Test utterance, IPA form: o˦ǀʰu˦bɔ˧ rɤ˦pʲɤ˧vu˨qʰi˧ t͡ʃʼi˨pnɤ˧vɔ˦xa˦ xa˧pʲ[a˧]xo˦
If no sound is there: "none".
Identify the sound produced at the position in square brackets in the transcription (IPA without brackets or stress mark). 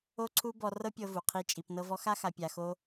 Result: a˧